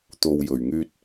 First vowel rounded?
yes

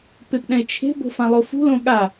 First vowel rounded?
no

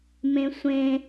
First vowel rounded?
no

